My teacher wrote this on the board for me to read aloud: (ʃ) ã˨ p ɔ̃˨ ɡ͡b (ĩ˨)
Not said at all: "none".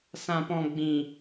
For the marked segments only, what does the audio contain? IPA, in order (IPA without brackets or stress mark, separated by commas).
s, ĩ˨